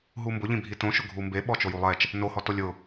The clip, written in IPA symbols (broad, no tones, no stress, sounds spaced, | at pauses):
ɦ u m b ʊ ʎ ĩ bʱ i t õ ʃ ʊ ɡʱ u m b e ɓ ɔ t͡ʃ o j u lˠ ɛ t͡ʃ | n o h ɔ t o lʲ ʊ